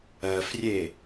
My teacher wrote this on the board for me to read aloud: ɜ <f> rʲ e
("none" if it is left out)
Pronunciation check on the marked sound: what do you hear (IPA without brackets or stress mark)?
f